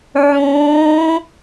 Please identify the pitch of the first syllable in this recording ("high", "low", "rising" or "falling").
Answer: rising